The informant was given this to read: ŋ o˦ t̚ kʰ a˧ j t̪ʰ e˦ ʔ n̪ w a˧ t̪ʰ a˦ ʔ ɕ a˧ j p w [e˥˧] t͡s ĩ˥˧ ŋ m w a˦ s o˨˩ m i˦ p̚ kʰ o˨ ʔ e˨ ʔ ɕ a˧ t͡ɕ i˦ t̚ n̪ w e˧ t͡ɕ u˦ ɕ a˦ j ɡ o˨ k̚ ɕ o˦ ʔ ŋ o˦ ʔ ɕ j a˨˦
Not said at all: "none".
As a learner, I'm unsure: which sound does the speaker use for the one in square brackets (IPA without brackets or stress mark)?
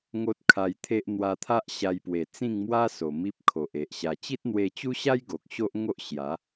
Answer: e˨˩